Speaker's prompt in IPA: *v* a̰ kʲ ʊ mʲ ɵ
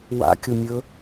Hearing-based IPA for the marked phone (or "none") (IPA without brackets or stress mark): w